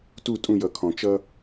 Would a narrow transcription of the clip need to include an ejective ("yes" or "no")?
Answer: yes